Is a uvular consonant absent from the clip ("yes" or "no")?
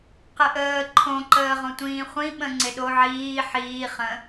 no